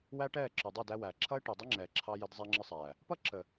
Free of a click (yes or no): no